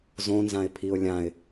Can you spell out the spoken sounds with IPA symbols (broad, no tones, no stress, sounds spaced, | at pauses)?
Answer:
z õ n z ã ɪ̯ pʰ i ʊ̯ lʲ ã ɪ̯